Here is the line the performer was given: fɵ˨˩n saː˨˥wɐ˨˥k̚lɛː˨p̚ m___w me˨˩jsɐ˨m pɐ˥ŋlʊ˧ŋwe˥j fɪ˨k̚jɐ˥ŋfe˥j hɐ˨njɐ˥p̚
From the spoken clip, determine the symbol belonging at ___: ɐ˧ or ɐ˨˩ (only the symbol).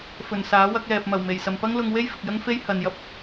ɐ˨˩